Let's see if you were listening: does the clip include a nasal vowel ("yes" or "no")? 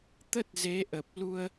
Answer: no